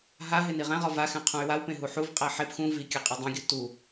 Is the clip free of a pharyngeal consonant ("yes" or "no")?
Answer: no